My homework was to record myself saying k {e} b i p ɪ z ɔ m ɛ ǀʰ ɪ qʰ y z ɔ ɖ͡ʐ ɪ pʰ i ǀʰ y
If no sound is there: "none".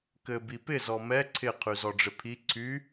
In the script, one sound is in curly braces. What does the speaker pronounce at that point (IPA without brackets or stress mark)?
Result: ɘ